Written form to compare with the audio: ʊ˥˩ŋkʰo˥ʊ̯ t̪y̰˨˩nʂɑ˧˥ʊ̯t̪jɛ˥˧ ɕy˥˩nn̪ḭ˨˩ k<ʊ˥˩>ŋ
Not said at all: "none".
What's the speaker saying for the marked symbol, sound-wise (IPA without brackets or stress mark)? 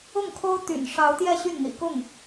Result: ʊ˥˩